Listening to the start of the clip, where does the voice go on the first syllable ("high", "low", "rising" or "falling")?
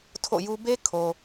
falling